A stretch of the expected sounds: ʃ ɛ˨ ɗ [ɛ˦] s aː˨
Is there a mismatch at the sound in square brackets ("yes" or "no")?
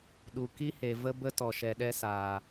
no